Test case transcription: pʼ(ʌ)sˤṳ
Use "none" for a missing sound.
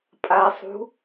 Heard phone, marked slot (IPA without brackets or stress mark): a